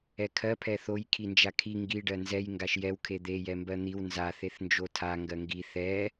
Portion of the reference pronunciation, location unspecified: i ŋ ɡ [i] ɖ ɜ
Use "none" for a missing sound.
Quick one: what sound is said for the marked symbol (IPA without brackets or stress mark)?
i